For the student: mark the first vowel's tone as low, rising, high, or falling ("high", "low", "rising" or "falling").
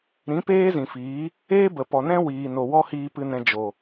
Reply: rising